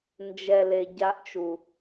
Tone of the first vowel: low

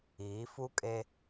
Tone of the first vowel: rising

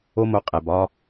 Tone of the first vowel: high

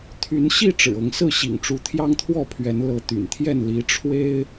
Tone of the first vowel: rising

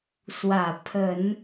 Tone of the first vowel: low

